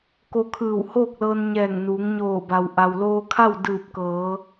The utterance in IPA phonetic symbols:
ko˧kʰɯː˧˩whoː˥˨k̚lɤː˧n ɲɛː˧˩ŋnuː˩˧ŋɲoː˧˩ba˩w ʔa˩wloː˧kʰa˥˨w dɯː˧˩p̚kɤː˩˧

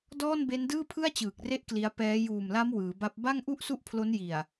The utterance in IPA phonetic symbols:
dɔː˥˩nbe˦˥ndɯː˥˩ pʰɯ˥˩a̯t͡ɕɯː˨˩k̚re˦˥ʔ kli˦˥a̯ pɛː˦˥ juː˨˩mla˦˥m wɯː˩˦ ba˦˥p̚ ba˥˩ŋʔu˥˩ʔ su˥˩ʔpʰlo˦˥nji˨˩a̯

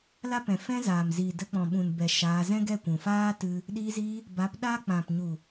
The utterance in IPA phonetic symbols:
la˦pɛ̃˨ fɛ̃˦zaː˨m ziː˨də˧k͡pɔ̃˨ɓũ˨n bɛ˨ ʃaː˧ zɛ̃˦ɡɛ˦˨kʷũ˨ faː˦ tɨ˦ | ɗiː˧ziː˧ | ba˨˦p ɗa˦k͡pã˨p ɲu˨

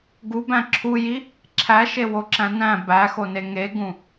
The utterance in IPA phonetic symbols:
ɡubæ̃ ǁʰuji | ǁʰæʃewoǁæ̃ næ̃ bæxone ŋeɡũ

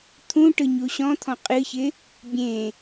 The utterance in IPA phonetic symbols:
t̪ʰũ ʈɯɲuɕɔ̃t̪ʰɔ̃ qʼɨçɪ | bʲẽ

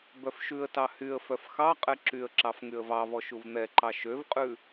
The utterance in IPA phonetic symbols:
bœfʃʉə̯tɑ hyə̯fœf xɑ qʼɛǁyə̯ǁɑf ŋyə̯vɑvɔ ʃuvn̪ɛǃɑ ʃøvqʼʉ

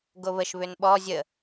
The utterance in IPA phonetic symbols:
ɡoβəʃ βʏnɓɔ zʲə

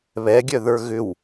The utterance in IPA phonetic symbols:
βɛɡʲœðə˞ ɣʏw

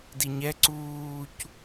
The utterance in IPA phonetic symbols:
diɲɛ ǀuːc

